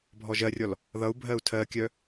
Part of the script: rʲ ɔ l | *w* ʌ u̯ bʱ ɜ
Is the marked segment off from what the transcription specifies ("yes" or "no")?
yes